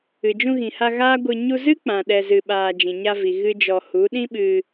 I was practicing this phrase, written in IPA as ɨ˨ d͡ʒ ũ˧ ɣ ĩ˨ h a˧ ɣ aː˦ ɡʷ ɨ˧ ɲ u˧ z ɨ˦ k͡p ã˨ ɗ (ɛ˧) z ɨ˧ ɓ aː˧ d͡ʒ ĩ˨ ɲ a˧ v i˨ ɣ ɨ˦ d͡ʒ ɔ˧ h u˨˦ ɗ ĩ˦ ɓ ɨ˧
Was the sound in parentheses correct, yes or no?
yes